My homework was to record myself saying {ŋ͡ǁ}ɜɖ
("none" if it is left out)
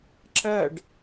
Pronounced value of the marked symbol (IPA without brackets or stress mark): ǁ